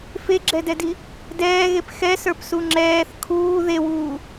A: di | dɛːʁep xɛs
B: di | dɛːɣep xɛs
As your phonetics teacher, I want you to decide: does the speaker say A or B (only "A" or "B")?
B